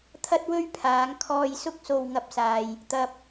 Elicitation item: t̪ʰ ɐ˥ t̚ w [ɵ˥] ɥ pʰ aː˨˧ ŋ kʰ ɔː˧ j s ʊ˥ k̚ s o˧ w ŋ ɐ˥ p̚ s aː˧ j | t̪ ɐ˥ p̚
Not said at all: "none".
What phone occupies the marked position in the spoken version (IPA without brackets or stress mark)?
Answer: ɵ˥